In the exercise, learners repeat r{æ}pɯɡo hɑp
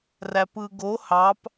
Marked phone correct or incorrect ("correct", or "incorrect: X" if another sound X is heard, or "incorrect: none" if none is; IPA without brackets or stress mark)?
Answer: correct